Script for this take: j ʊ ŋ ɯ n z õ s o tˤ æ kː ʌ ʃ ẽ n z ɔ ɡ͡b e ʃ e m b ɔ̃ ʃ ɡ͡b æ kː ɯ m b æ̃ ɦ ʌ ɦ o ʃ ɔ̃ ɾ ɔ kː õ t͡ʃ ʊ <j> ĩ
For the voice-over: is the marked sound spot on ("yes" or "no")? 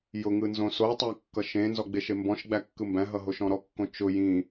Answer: yes